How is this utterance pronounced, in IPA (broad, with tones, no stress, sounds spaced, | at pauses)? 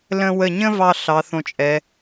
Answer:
l ə̃˧ w ə˧˩ ɲ ə̃˥ v ɑ˧ ɬ ɑ˩˧ θ õ˧˩ t͡ʃʼ ɛ˩˧